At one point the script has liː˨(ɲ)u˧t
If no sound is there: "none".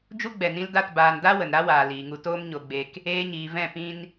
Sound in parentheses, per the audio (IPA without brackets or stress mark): ŋ